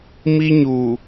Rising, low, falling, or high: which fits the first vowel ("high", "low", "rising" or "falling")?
high